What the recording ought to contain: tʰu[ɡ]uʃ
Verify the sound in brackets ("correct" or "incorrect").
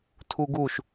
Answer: correct